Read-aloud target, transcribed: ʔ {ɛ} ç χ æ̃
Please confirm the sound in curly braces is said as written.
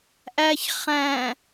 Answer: no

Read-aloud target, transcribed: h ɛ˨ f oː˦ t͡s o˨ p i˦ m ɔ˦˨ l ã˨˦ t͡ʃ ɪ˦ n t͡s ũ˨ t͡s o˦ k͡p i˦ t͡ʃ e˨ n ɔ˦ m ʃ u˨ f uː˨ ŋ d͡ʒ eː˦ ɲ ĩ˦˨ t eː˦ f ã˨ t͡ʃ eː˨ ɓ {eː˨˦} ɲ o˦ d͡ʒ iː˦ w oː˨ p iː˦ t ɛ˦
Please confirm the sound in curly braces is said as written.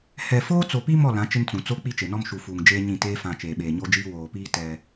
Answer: no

